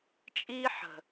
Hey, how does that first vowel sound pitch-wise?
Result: high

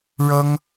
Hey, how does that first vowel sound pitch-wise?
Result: high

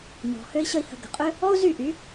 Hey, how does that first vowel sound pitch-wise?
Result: low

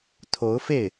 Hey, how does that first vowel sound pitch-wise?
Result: rising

